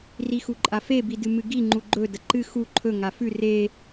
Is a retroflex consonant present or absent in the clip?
absent